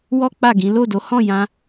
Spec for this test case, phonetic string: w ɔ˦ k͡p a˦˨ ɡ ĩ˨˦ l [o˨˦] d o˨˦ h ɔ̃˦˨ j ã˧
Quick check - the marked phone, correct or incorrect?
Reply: incorrect